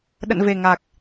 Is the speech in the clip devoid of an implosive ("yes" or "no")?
no